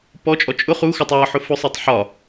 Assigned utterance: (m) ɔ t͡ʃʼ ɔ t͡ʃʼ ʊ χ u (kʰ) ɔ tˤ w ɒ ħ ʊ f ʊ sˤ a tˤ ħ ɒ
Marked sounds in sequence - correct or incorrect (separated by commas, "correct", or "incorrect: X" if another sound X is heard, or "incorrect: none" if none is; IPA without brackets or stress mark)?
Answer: incorrect: p, incorrect: x